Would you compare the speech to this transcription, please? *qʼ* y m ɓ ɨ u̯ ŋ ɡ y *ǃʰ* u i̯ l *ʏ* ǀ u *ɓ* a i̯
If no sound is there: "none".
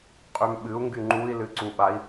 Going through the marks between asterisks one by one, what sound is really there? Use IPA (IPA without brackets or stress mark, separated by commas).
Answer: qʼ, ŋ͡ǃ, ɨ, ɓ